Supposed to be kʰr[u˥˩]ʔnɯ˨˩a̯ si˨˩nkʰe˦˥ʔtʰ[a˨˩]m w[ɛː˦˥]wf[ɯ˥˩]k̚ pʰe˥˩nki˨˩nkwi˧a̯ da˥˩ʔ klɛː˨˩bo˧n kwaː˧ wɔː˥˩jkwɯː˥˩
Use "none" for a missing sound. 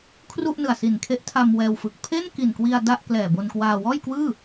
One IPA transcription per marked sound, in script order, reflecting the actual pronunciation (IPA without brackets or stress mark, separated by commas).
u˥˩, a˧, ɛː˧, ɯ˨˩